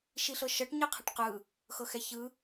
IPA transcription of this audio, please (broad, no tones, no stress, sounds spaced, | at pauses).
ʃ i ɬ ɤ ʃ ɤ ʈ ɲ ɯ qʰ ɛ ʈ q ɯ | x ɤ x ɛ ç ɯ